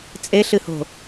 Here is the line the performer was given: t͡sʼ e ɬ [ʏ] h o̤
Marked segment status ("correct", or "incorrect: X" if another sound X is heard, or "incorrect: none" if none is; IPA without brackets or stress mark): incorrect: ɨ